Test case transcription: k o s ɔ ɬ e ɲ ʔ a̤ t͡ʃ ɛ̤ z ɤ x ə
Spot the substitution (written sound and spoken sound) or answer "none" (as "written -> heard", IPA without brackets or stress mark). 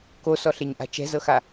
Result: ə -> a